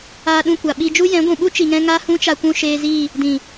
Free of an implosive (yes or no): no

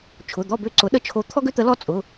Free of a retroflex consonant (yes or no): yes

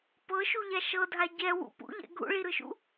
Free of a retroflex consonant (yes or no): no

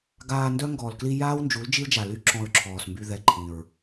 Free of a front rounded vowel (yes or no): no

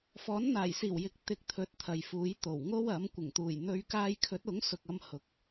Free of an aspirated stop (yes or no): no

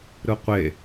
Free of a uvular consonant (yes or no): no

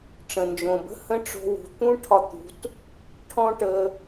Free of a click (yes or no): yes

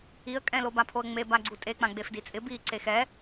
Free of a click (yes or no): no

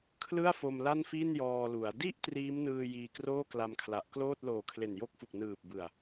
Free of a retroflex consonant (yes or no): yes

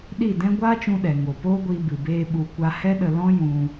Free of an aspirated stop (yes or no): yes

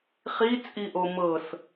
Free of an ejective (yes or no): no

